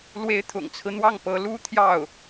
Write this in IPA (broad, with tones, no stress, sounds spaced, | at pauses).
l w e˧˥ ɪ̯ t̪ʰ ʊ̰˨˩ ŋ t͡sʰ ɹ̩˦ n̪ w ɑ˥˩ ŋ p ɤ˧˥ l u˥ t̪ʰ j ɑ˥˩ ʊ̯